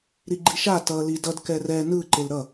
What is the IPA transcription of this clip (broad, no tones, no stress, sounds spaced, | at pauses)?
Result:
ɾ i ɡ͡ǃ i ʃ a t ʌ l i d ʌ d k ɛ r ɛ n ɯ ǃ e l ɾ ʌ